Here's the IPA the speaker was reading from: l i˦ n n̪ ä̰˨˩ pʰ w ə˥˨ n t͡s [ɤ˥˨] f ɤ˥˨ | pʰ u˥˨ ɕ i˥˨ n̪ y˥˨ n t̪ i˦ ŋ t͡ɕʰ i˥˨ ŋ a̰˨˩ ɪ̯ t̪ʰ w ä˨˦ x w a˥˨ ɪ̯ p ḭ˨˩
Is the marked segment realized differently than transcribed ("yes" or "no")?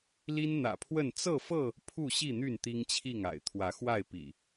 no